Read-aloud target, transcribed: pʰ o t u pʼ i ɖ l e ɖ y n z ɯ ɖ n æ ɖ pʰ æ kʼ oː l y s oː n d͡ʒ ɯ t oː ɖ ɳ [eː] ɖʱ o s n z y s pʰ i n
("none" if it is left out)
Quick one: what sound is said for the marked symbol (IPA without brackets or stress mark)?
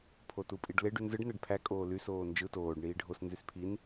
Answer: iː